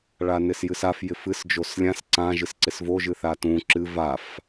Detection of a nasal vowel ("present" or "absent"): present